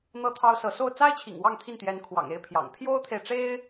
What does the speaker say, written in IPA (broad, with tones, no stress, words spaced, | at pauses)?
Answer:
n̪ɤ˥˩t̪ʰɑ˥ʊ̯sɤ˧˥ so˥˩ʊ̯ t͡sa˥ɪ̯t͡ɕʰḭ˨˩ŋ wɑ˥˧ŋt̪ʰi˥˩nt̪jɛ˧˥n kʰwɑ̰˨˩ŋe˥˩ɪ̯pʰjɑ̰˨˩ŋ pʰjo˥ʊ̯t̪ʰe˨ɪ̯ʈ͡ʂe˥ɪ̯